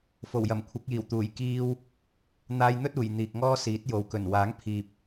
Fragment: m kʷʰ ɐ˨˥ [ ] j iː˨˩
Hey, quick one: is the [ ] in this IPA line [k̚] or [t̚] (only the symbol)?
k̚